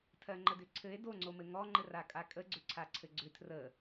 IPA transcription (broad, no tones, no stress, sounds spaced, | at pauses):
tʰ ɜ ŋ͡ǃ ə d ʏ ǀʰ ɘ e̯ d o ŋ͡ǀ o m ɘ ŋ ɔ ŋ͡ǃ ɘ r a kʼ a kʼ ə ɡ͡ǀ ʏ ǀʰ a ǀʰ ɘ ɡ͡ǀ ʏ tʰ r ə